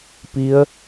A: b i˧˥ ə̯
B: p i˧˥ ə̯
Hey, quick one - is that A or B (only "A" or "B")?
B